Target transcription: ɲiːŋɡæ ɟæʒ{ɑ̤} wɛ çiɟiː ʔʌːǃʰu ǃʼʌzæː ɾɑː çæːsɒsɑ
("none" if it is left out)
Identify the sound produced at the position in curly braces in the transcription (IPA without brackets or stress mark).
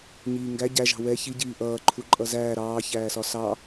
ɑ̤